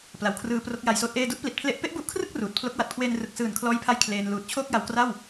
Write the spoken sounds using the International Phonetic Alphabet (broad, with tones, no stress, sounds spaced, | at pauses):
p l a˩˦ w kʰ r ɯː˧ p r o˦˥ k̚ j a˧ j s oː˦˥ t̚ ʔ eː˧ d u˥˩ ʔ p l i˨˩ t̚ pʰ l e˦˥ ʔ p e˦˥ ʔ b u˦˥ ʔ kʰ r ɯ˥˩ k̚ r uː˨˩ t̚ pʰ l o˦˥ k̚ w a˨˩ t̚ kʰ w eː˧ n r ɯ˨˩ k̚ s ɯː˨˩ n kʰ l ɔː˥˩ j pʰ a˥˩ j kʰ l eː˧ n l uː˨˩ t̚ t͡ɕʰ oː˥˩ k̚ j a˧ w k r a˥˩ w